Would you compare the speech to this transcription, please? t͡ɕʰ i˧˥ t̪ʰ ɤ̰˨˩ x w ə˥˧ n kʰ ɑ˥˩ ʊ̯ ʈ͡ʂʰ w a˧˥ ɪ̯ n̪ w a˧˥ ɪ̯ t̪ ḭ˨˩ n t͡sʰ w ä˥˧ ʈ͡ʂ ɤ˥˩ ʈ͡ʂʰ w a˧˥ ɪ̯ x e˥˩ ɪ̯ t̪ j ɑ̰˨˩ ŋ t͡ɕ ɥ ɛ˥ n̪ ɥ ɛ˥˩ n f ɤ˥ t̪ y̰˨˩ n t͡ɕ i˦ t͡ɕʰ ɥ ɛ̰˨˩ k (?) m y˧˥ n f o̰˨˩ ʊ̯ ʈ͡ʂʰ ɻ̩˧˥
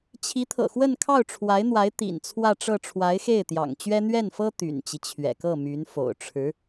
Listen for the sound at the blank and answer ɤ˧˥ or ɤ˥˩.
ɤ˥˩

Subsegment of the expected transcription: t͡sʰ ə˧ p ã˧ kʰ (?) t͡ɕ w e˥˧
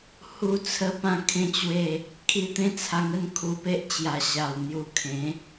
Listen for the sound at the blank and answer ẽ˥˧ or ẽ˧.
ẽ˥˧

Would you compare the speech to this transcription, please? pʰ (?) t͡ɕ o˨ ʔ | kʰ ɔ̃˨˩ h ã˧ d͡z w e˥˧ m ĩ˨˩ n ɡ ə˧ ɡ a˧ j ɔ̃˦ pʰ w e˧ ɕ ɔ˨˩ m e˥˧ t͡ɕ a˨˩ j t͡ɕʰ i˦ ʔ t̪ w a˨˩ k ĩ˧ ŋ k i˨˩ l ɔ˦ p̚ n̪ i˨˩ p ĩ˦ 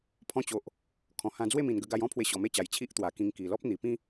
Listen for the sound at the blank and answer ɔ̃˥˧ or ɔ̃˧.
ɔ̃˧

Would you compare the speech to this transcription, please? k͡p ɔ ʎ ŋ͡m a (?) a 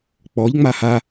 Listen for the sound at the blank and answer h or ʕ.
h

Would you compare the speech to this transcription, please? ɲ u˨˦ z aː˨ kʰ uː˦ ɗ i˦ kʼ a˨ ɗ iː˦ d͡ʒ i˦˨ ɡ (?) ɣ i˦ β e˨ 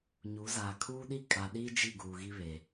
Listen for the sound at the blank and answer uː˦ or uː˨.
uː˨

